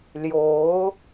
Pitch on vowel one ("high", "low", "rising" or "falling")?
rising